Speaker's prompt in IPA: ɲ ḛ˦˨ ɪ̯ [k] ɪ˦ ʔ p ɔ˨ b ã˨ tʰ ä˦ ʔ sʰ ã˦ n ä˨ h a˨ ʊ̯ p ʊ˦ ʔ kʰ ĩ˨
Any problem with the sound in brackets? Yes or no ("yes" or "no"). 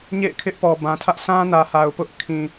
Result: yes